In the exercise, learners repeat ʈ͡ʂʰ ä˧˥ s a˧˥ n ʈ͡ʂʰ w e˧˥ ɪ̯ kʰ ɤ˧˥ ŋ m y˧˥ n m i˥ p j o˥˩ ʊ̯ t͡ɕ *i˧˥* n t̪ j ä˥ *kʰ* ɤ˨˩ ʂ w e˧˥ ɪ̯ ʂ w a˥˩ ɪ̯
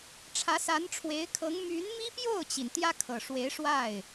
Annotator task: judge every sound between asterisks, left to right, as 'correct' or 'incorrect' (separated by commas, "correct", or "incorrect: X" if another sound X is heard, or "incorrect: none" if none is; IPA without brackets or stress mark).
incorrect: i˩, correct